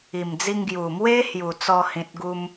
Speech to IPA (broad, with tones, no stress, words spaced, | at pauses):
i˨˩md͡zi˧ŋ ɡju˨˩mwe˦ hju˨˩t͡sɔ˧ hĩ˨t̚ɡu˧m